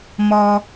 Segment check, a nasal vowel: absent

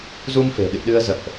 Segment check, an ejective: absent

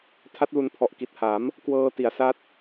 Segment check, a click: absent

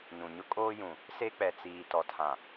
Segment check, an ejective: present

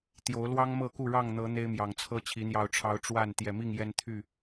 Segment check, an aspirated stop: present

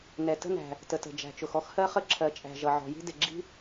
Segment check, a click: present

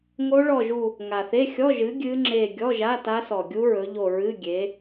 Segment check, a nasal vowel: absent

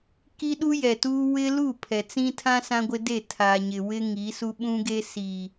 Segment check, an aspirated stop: present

